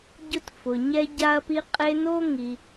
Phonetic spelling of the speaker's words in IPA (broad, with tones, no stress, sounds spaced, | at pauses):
ɟ ʊ˦ t f ʊ˩ ɲ ɛ˥ ɟ a˥ ɐ̯ p i˥ qʼ e˦ n o˥ ŋ i˨